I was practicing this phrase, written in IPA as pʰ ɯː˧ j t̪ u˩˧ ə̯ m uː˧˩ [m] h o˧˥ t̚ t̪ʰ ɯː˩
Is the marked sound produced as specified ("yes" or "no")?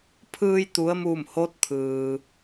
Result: yes